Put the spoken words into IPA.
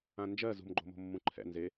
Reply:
ã n d͡ʒ ɜ z ṳ m ɡ͡ǃ o̤ m o̤ mː ũ ǃʰ ɛ̰ n z e

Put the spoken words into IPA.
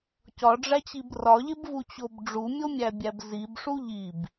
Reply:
c ɒ ɖ͡ʐ æ t͡ɕ i b r ɒ ʎ e b v u t͡ɕ o b ɖ͡ʐ u mʲ o mʲ æ bʲ æ b z i b ʂ u ʎ i b

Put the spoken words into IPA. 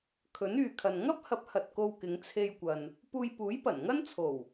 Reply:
kʰ ɵ˨˥ n yː˨ kʰ ɐ˨ n ŋ ɐ˥ p̚ h ɐ˨˥ p̚ h ɐ˨ t̚ k o˧ w k ɪ˨˧ ŋ t͡sʰ e˧ j kʷ ɐ˨ n | p uː˧ j p uː˨˥ j p ɐ˨˩ n ŋ ɐ˥ n t͡sʰ o˨˩ w

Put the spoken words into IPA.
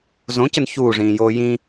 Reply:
z õ c ə n ç uː ʐ ĩː j oː j ĩ

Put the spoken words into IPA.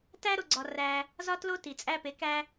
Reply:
t æ˦ ɾ o˧ ɡ͡ǀ ɒ˧ r æ˧ | z ɒ˦ t l o˦ t i˨ t͡sʼ æ˧ p e˨˦ k æ˦

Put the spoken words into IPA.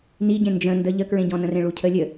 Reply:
n i ɟ ẽ n d͡ʒ ə̃ n d ə ʎ ə k ɹ ẽ ɟ ɔ̃ n ə̃ r ẽ ɭ u cʰ ə lʲ ə

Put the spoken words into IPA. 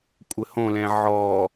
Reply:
kʷʼ ɘ h õ l ɛ̃ ʕ ɔ

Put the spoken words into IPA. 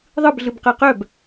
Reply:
ðˤ ɯ b ɮ ɯ b q ɜ q œ b

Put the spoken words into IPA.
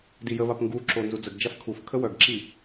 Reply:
d i j ə β a p ŋ ɡ u ǁ o n z u d͡z ə ɡ d͡ʒ a f kʰ u f kʰ ə w œ ɡ ǁ i

